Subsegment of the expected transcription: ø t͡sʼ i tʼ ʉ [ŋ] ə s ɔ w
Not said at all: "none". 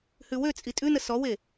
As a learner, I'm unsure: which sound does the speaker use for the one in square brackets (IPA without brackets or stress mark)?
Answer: n